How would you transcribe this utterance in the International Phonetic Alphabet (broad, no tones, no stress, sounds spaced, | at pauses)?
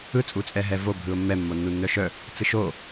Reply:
ɯ t͡sʼ u t͡sʼ ɛ ɦ ɛ v o bʱ ɯ ʊ̯ mː ɛ mː o nː u nː œ ʃ œ | t͡s ɯ ʃ o